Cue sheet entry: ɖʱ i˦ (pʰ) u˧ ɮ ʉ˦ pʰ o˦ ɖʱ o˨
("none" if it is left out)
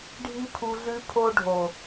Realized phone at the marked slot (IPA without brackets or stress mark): pʰ